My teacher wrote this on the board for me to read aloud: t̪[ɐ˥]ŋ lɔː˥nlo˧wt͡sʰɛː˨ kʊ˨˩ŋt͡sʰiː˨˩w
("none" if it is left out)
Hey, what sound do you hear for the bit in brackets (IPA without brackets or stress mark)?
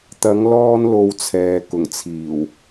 ɐ˨˥